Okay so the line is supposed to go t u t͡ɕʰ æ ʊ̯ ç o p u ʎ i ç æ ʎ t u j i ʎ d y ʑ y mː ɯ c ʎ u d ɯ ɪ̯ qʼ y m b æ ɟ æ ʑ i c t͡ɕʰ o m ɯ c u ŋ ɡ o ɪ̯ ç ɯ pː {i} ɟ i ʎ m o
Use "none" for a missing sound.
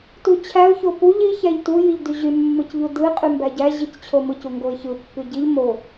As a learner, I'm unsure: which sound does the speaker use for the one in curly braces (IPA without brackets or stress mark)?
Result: y